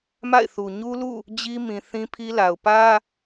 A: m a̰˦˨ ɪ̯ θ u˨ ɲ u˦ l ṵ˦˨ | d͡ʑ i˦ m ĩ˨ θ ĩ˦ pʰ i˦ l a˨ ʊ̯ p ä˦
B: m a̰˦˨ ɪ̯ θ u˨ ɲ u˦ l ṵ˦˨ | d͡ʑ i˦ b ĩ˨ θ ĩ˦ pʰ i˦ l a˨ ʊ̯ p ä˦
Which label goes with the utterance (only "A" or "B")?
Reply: A